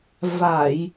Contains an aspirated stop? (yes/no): no